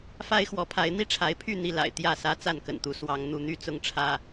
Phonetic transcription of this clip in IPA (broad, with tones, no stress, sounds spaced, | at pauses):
f a˦ ɪ̯ x w ɔ˨˦ pʰ a˨˦ ɪ̯ n̪ i˥˨ ʈ͡ʂʰ a˨˦ ɪ̯ pʰ y˥˨ n̪ i˥˨ l a̰˨˩ ɪ̯ t̪ j ä˥˨ s ä˦ t͡s a˥˨ n k ə̰˨˩ n t̪ u˨˦ s w ɑ˨˦ ŋ n̪ u˨˦ n̪ y˦ t͡s ʊ˦ ŋ ʈ͡ʂʰ ä˦